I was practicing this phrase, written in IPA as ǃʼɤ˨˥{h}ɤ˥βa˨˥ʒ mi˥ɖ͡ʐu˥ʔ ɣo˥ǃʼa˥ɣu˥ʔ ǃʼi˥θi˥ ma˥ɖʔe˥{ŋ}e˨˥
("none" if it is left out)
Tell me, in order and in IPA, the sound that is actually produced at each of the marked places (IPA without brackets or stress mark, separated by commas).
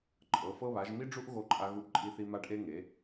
f, ŋ